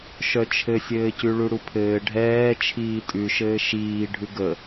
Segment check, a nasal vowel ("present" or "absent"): absent